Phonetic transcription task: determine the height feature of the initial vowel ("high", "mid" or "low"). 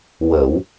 mid